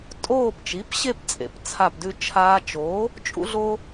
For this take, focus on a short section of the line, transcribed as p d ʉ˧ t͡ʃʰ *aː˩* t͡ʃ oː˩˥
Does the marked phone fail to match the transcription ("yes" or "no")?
yes